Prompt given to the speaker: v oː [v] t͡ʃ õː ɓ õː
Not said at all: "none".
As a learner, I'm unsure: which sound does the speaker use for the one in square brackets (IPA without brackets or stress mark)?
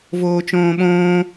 none